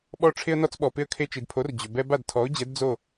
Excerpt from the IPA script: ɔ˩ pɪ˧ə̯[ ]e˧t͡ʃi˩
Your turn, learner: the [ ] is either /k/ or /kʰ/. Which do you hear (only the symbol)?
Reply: kʰ